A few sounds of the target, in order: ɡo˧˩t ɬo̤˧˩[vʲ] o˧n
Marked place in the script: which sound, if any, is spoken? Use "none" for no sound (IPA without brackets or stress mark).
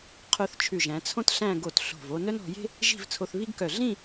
v